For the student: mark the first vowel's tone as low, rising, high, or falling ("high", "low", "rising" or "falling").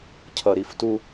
low